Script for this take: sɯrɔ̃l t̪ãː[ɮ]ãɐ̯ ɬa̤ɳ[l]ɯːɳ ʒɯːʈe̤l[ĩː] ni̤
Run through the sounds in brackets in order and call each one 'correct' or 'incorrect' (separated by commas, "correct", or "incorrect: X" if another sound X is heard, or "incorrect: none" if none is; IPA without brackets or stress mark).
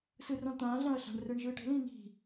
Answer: correct, incorrect: r, correct